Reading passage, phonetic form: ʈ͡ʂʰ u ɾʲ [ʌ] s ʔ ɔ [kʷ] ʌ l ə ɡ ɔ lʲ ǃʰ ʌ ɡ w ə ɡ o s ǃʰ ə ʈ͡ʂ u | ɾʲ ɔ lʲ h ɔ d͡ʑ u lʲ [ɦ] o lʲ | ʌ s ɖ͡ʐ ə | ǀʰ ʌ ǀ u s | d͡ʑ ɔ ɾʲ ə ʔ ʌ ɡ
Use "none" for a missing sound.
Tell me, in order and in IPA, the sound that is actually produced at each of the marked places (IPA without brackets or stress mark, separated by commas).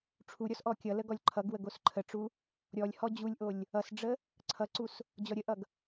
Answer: ɔ, kʲ, ʔ